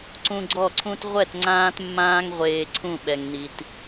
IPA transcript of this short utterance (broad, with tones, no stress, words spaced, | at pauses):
ǀũ˧ɡ͡ǀɔ˦˨ǀʰũ˦t ʁʷɛ˦˨t ŋ͡ǀãː˧tmːãː˧ŋʁʷeː˨ ǀʰũ˦˨ɓɛ˨ŋni˨t